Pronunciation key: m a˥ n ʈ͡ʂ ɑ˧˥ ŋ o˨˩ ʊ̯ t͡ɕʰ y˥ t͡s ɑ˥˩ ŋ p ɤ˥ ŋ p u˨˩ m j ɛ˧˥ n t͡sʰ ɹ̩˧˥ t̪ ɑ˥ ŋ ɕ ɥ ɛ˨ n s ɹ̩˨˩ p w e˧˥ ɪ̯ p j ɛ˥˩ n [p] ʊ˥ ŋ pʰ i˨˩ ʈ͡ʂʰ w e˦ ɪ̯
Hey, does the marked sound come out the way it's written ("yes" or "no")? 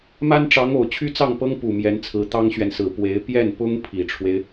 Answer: yes